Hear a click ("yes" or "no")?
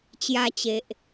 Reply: no